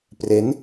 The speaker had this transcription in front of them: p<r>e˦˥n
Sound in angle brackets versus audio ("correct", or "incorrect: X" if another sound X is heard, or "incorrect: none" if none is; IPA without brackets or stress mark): correct